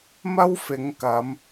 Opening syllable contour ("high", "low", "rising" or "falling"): high